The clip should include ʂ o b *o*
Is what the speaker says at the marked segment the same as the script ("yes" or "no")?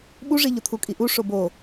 yes